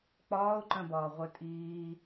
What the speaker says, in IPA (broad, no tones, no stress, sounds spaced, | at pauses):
k͡p ɒː ʊ̯ ǃ œ̃ b ɒː ʁʷ œ tʼ iː